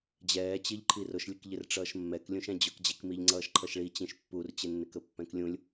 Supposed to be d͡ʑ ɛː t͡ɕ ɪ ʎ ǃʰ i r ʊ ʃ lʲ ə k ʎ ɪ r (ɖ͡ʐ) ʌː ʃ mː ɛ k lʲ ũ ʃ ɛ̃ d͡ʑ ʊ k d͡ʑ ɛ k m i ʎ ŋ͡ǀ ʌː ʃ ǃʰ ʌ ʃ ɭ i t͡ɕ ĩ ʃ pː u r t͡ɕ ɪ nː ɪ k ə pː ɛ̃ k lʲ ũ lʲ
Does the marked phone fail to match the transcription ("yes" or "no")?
yes